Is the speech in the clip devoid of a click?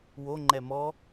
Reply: no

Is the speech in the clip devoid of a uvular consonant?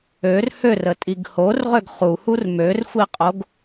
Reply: no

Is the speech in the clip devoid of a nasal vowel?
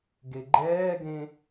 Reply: no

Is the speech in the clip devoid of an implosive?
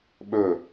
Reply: no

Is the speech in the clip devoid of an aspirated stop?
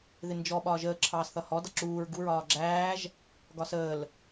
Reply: no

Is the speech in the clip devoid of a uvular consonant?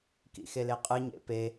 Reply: no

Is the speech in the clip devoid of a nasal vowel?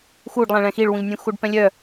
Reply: no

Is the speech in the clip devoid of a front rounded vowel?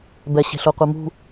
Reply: yes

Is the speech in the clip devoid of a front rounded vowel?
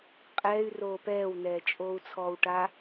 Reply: no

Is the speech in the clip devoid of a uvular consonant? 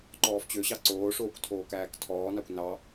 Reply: yes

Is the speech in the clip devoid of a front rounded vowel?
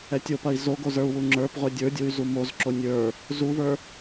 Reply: no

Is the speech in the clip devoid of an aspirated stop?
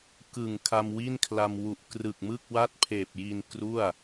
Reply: no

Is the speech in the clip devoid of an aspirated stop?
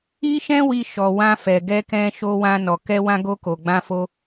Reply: yes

